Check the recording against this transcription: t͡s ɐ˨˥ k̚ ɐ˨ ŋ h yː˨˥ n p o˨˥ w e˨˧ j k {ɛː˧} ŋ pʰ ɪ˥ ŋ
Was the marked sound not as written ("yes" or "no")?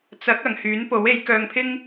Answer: yes